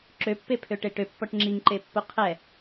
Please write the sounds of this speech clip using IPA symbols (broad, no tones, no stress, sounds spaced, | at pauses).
ǁ ø pː e pʰ ø ʈ e ʈ ø pː ɔ ʈ ŋ͡ǁ i ŋ ǃ e pː o qʰ ɛ